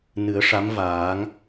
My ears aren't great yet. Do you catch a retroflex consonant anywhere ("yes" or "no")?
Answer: yes